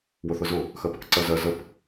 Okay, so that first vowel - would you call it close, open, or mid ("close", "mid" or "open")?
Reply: close